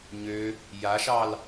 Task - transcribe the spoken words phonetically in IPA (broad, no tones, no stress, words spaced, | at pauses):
ɲø | jaʃɑl